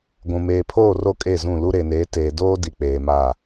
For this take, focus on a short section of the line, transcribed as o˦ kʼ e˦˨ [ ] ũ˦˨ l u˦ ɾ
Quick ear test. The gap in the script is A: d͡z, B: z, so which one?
B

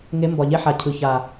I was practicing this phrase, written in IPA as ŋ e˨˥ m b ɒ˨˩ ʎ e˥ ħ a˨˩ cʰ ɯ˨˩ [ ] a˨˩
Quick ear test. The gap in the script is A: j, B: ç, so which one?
B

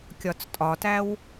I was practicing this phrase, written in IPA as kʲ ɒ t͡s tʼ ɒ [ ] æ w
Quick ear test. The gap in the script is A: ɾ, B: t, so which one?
B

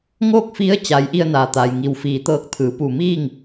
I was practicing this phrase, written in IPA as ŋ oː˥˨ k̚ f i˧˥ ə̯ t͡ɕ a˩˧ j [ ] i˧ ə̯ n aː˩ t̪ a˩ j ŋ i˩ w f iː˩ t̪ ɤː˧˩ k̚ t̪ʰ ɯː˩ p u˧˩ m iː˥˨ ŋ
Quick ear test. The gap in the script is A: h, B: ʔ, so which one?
B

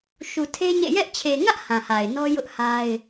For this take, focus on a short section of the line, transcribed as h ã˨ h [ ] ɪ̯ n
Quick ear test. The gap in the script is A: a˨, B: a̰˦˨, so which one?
A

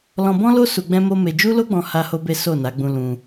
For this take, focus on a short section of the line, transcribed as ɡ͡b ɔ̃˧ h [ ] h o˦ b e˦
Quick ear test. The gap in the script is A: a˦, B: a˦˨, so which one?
A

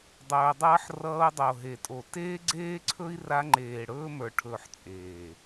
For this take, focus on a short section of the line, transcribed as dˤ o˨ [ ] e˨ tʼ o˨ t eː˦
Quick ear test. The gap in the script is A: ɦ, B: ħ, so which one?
A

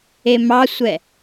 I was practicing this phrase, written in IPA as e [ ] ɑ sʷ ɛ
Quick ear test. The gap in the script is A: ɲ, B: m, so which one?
B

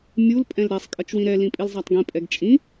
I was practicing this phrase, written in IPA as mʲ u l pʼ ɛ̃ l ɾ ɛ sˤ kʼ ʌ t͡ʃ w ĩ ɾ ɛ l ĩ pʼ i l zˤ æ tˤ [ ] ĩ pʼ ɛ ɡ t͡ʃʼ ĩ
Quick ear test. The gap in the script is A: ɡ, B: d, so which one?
A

